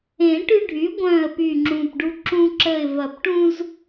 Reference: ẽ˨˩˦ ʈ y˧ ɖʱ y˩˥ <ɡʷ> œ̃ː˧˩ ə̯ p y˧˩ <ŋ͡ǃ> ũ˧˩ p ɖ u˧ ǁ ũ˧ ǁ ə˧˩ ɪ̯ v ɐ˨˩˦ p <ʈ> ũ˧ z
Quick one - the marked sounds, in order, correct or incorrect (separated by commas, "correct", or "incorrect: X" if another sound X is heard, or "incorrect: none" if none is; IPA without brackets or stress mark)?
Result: correct, incorrect: ŋ͡ǁ, correct